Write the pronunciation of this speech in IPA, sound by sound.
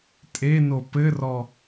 tʼ e n o p ɘ r ɔ

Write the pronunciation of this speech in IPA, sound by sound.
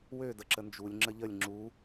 w ø d ə ǁ ə n d͡ʒ u lʲ ŋ͡ǁ ə ʎ ə lʲ ŋ͡ǁ u

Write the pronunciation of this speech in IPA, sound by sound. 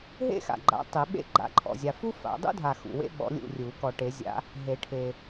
ɦ ḛ˥ x a̰˨ ɡ͡ǃ a̰˨˥ tˤ e˨˩˦ ɓ ḛ˥ ɡ͡ǃ a̰˨ ǃʰ ɔ̰˨ zʲ a˨ f u˥ f a̰˨˩˦ dˤ ṵ˥ dʱ a˨ x ṵ˨ w ḛ˥ ɓ ɔ̰˨˥ lʲ ṵ˦˨ rʲ u˨˩˦ k ɔ˨ ʈ e˨˩˦ zʲ a̰˨˥ | ɦ e˨˩˦ ʈʰ e˨

